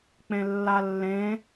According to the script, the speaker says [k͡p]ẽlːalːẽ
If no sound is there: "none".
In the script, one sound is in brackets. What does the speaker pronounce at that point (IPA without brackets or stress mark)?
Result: k͡p